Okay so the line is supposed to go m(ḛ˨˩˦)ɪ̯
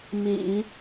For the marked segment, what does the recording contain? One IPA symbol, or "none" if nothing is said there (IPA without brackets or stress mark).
ḛ˨˩˦